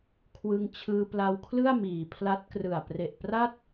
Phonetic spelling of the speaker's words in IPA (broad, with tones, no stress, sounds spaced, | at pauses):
kʰ w ɯ˧ ŋ t͡ɕʰ ɯː˧ p l a˧ w kʰ l ɯ˥˩ a̯ m iː˩˦ pʰ l a˦˥ t̚ k r ɯ˨˩ a̯ p r e˨˩ ʔ p r a˥˩ t̚